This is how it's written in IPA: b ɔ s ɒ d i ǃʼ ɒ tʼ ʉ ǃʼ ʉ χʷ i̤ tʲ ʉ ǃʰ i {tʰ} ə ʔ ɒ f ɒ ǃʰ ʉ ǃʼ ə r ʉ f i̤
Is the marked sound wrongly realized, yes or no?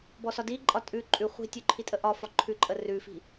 yes